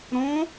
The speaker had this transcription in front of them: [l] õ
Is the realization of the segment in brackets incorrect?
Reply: yes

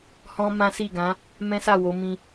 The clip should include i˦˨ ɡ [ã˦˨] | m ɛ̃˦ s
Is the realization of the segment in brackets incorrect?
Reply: yes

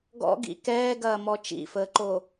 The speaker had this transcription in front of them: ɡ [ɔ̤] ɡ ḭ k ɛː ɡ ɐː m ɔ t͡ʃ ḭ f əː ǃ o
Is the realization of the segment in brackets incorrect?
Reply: yes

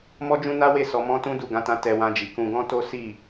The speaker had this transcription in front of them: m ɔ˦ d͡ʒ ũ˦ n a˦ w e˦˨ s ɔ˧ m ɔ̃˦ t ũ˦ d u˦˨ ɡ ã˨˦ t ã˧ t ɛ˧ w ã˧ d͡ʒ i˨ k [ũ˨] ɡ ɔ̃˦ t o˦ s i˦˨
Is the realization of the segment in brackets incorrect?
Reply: yes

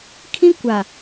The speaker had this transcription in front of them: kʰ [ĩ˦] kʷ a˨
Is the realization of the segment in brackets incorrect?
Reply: no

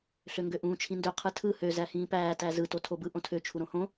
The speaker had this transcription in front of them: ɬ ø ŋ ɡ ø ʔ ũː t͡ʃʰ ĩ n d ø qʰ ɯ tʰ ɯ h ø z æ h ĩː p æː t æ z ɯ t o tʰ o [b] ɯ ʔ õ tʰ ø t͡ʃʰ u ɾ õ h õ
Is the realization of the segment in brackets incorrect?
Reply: no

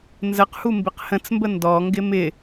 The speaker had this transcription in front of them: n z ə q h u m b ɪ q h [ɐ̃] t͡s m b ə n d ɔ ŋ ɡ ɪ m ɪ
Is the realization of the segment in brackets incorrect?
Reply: yes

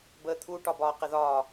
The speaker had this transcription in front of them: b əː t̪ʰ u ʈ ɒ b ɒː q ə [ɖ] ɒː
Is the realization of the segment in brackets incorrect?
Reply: yes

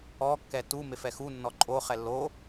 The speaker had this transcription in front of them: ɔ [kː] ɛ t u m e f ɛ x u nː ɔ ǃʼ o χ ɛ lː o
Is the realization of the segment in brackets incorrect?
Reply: no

